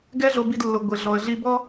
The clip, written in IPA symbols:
ɡɛ˥ɮo˧bi˧dlːʊ˩ ɡʷɪ˩ ɮɔ˩ə̯ɮi˧bɔ˥

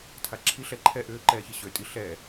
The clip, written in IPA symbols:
tʰaǁʰiɬɛ ǃʰɛ ʔʏː ǃɛːçiɕø tʼi ɬɛː

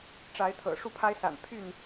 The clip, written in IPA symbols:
ʈ͡ʂa˨˦ɪ̯ t̪ʰɤ̰˨˩ʂu˥˨ pʰa˦ɪ̯sa̰˨˩n pʰy˥˨n

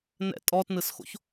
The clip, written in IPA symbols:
nɛ̰ tʼɔtnɯsxo̰ç

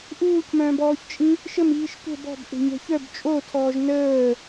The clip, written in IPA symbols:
ʔuːcmœ̃ːbɔːçt͡ʃʼĩ | ʃəmiːʃ tʷɛ̤ bɔ̤bʔe̤ɲɛ̤ çœb t͡ʃʼotʰɔːʒ nəː

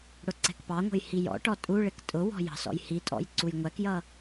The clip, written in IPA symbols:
ɽʊǀɛ̤kpɑŋʷə̤j hijɔ̰ʈɔ tʼuɭɪk tʼʊwɔ̤ jɑ̤sɔ̰jhitʼɔ̰j ǀujŋʷækjʌ

